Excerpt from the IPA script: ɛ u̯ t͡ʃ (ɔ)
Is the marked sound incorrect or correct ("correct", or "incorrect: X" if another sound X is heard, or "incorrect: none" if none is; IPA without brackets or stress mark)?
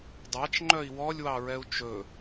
incorrect: ɵ